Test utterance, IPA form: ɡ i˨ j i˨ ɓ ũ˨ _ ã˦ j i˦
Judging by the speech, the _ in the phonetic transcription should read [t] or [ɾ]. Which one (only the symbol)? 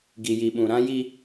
ɾ